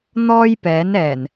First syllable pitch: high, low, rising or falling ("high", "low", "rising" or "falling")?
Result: high